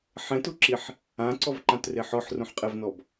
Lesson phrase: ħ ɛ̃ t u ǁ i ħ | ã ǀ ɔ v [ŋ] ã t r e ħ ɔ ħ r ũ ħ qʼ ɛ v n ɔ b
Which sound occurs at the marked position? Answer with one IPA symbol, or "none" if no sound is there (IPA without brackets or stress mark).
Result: ǃ